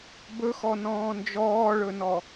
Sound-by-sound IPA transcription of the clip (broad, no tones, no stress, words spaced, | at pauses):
bɵxɔnɔ̃ː nd͡ʒɔːɭɵnɔ